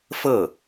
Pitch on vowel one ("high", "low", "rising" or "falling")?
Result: falling